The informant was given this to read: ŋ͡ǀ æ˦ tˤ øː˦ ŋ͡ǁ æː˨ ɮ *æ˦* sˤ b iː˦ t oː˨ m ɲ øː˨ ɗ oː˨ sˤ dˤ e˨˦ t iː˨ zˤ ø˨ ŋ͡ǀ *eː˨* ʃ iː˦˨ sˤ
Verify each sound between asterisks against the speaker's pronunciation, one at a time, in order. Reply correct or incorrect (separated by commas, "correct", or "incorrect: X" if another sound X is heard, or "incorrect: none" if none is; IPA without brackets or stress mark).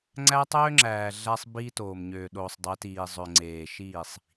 correct, correct